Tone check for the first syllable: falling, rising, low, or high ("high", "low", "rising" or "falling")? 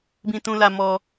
high